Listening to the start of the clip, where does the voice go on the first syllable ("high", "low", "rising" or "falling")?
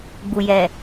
low